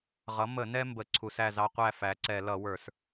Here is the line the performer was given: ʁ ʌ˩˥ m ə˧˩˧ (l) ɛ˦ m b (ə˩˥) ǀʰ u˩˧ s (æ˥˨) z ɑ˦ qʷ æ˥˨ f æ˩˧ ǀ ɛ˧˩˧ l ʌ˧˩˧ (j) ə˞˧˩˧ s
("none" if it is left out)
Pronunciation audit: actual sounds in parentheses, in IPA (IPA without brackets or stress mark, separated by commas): n, ə˩˥, æ˥˨, w